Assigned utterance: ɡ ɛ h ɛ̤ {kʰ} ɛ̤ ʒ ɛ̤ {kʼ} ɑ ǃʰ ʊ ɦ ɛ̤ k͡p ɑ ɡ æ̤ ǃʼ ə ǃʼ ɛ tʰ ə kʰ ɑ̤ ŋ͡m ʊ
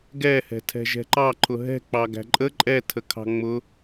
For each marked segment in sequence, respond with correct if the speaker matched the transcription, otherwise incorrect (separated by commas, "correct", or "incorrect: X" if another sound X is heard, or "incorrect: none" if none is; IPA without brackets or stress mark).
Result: incorrect: tʰ, incorrect: ǃ